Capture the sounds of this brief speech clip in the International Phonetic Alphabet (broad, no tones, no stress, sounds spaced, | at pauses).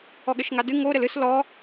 ɔ ɠ ɘ ʃ ŋ a d ɨ ŋ o ɾ ɘ l ɨ s l ɔ